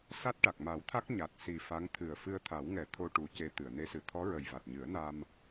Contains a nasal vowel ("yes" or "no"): no